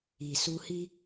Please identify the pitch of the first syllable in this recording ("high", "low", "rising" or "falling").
low